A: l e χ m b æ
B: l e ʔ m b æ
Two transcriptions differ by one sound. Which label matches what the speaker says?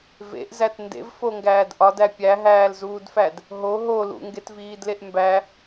B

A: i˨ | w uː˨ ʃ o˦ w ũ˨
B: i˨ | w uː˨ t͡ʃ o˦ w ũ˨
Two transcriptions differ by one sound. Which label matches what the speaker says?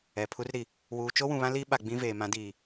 B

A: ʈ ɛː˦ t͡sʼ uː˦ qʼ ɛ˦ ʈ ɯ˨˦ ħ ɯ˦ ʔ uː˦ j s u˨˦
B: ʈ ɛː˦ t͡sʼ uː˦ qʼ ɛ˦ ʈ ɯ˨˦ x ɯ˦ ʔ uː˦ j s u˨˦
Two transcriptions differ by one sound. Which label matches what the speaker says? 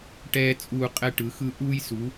B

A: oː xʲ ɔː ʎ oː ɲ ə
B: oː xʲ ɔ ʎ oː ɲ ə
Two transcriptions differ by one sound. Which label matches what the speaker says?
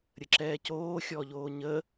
B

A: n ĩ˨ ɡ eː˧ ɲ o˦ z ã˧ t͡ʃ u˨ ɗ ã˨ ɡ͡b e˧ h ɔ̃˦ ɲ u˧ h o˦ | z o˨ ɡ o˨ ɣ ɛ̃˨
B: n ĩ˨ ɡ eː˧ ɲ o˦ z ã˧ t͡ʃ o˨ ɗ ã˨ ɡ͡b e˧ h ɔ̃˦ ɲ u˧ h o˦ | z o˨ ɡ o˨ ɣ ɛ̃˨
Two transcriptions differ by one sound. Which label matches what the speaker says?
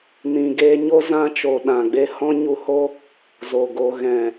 B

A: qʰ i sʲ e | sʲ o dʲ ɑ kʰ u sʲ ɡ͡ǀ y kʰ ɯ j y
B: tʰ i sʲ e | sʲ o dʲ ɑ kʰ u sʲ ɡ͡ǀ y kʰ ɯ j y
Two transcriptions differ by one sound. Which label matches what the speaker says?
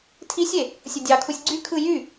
B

